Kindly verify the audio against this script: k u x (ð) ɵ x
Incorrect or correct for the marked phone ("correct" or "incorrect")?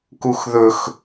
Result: correct